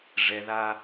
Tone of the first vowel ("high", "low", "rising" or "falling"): high